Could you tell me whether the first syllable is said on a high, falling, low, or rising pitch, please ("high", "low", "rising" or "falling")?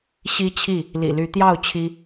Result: high